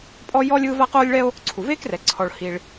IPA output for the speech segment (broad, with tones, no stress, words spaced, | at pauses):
pʼɔ˥jɔ˥lʲ ɯː˥va˥ qoː˥lʲɭɛ˥o̯ | ǀʰu˩veː˥krɛ˩ ǀʰɔ˩ɭ hi˩ɭ